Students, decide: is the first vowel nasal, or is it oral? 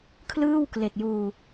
oral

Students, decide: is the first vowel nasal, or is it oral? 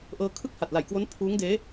oral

